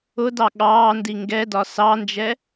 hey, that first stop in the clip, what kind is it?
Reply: plain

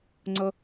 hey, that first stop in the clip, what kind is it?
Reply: click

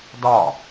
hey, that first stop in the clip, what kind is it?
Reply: plain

